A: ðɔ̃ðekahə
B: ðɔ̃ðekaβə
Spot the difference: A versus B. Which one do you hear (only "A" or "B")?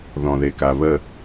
B